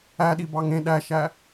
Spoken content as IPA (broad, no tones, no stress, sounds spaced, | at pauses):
æ ɗ i b ɑ ŋ ẽ ɗ æ ʃ æ